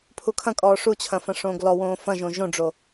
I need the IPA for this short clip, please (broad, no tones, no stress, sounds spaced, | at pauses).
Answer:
pʰ u kʰ ɐ̃ kʼ ɔː ʂ u t͡ɕʰ ɐ̃ f ɐ̃ ʂ õː ɡ l ɔ w õː f ɐ̃ ʒ õ ʒ õ ɖ͡ʐ o